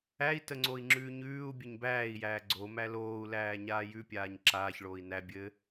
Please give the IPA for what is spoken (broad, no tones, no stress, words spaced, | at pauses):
æi̯təŋ͡ǀoi̯ŋ͡ǁʉː ɲʉːu̯bʲɘɲ bæːi̯jæː ɡ͡ǀomæ loːu̯læːɲaː jʉpʲaːɲ ǁaːçɭoːi̯ næ bʲɘ